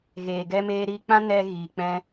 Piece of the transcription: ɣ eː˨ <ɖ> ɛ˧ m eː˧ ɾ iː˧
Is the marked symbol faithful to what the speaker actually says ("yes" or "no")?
no